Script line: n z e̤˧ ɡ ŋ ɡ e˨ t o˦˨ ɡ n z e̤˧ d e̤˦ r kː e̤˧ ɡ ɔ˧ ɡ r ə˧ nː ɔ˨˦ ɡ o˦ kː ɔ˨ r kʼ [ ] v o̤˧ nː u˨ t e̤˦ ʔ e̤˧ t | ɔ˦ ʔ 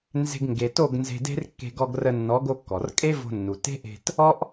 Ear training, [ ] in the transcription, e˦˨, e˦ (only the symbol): e˦